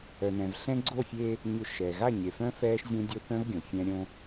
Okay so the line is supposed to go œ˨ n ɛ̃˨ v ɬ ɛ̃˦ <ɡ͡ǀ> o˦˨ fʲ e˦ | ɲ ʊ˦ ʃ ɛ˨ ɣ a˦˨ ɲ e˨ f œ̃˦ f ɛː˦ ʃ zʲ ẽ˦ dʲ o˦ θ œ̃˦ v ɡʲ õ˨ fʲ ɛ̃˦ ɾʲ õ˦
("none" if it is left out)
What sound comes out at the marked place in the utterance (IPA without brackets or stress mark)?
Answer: ɡ͡ǀ